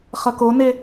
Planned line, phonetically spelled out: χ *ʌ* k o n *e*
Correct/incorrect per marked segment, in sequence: correct, correct

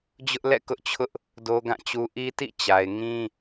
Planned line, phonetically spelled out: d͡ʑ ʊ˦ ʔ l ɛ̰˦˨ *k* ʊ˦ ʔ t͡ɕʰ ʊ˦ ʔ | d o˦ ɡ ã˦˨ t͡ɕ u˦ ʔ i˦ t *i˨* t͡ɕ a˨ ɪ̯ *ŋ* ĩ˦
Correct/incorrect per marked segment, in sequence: correct, incorrect: ḭ˦˨, correct

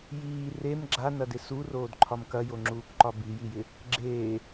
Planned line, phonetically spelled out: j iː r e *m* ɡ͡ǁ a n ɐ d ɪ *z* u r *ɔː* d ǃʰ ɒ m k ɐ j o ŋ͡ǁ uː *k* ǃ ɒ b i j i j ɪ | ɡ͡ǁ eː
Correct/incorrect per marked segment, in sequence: correct, incorrect: s, incorrect: oː, correct

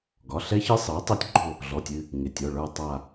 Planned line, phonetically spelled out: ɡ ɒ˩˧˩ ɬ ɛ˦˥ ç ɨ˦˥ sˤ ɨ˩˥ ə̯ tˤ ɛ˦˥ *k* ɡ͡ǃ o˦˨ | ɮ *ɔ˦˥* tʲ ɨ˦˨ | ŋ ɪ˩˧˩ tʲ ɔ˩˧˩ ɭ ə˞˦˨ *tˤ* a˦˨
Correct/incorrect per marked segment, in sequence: incorrect: tʲ, incorrect: ɔ˩˧˩, correct

